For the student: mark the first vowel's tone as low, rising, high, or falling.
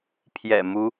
low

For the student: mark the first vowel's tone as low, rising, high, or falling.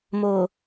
low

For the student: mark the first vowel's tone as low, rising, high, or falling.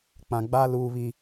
low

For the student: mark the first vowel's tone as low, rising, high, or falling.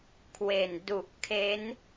low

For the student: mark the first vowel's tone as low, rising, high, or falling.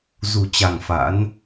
low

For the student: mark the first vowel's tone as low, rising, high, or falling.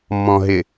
low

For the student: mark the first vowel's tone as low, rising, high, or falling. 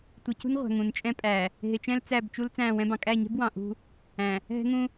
low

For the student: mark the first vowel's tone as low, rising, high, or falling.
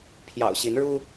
low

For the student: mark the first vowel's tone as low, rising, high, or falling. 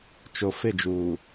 low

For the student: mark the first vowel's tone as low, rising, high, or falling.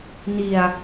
low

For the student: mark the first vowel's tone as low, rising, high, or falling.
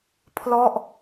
falling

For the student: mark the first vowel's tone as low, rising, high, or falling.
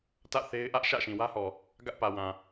falling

